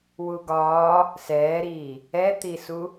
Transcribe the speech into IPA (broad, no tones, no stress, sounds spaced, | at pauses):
w u ɡ ɒː | s ɛː ɾ iː | ɛ t̪ i s u